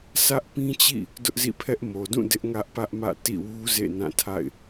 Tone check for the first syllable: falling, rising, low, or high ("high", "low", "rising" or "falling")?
high